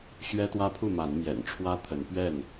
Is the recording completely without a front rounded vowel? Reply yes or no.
yes